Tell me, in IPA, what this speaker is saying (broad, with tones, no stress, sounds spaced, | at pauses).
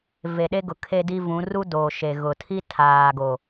v e˨ ɗ e˦ ɡ ʊ˨ kʰ e˦ d i˦ v ũ˨˦ r u˦ d oː˨ ʃ e˨ ɣ ʊ˨ tʰ i˦ tʰ aː˨ ɡ o˨